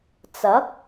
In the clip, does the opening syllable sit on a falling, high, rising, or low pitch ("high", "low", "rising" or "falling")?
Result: rising